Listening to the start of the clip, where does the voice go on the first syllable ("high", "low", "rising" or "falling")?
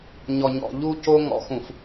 low